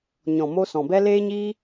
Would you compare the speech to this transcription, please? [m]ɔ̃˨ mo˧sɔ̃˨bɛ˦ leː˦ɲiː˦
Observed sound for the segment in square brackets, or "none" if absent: ɲ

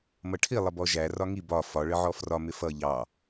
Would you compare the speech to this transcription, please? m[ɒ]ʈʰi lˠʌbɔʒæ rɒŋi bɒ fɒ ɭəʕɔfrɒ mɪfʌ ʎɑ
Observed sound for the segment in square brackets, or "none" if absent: ʌ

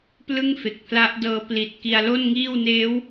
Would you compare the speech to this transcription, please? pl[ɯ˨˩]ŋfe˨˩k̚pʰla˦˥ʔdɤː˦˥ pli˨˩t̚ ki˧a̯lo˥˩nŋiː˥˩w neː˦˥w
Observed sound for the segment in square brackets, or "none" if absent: ɯ˥˩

